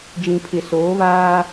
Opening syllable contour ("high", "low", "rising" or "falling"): low